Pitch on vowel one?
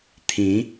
rising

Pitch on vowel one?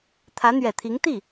rising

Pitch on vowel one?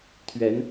rising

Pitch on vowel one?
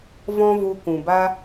high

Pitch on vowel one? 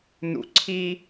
low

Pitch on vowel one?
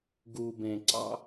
low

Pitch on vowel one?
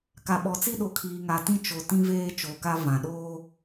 low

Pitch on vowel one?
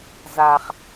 low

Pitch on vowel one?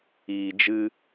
low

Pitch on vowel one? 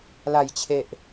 low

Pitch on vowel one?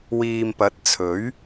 low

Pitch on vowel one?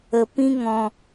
low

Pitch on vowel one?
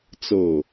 falling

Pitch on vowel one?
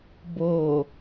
low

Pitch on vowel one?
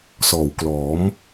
low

